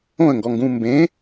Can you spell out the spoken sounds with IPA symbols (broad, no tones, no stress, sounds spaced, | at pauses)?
õ ə̯ ŋ ɡ ɔ ŋ ɡ ũ m b ẽ